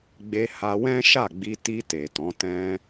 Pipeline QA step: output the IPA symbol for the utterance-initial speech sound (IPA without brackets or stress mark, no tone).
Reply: ɡ͡b